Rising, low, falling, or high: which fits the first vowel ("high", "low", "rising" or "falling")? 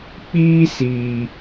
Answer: high